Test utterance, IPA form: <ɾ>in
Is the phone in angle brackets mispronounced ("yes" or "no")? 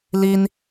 yes